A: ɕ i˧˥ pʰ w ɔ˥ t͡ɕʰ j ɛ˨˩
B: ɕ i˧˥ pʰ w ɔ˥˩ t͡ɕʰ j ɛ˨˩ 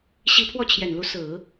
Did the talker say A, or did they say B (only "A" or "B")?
B